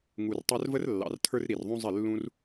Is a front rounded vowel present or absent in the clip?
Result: absent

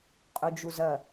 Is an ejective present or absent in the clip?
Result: present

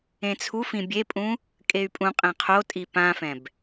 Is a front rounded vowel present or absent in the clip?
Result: present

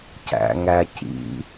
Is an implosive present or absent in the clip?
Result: absent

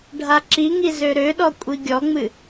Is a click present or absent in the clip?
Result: present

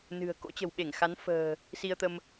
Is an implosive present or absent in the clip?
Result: present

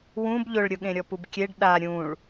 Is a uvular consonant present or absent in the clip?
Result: absent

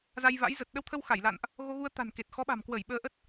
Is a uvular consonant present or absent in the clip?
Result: absent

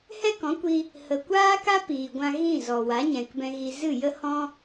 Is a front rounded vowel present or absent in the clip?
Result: absent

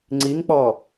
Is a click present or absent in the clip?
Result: present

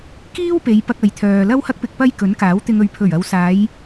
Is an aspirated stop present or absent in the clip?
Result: present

